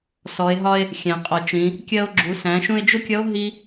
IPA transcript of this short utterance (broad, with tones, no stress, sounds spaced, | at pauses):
s ɔ˩˧ e̯ ɦ ɒ˧ e̯ | xʲ æ̃˩ qʼ ɔ˩ t͡ʃ ĩ˩˧ | kʲ ɜ˧ o̯ ɡ͡ǁ u˩˧ s æ̃˩˧ ʃ ũ˧ e̯ d͡ʒ ʊ˥ kʲ ʌ˧˥ o̯ ɦ i˥